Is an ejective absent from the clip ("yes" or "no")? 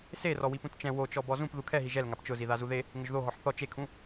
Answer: yes